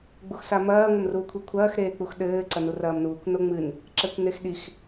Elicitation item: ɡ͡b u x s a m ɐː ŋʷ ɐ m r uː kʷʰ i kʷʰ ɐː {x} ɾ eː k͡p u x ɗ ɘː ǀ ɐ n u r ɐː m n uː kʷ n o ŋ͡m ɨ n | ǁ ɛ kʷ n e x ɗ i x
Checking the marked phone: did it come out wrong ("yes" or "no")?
no